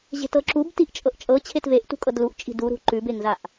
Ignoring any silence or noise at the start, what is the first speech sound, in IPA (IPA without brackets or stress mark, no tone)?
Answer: ʑ